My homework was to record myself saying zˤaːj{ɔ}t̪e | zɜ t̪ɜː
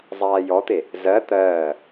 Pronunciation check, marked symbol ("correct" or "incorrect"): correct